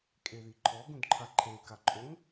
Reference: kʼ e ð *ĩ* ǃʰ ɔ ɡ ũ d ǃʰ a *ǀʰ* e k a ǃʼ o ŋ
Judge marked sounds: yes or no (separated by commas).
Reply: no, no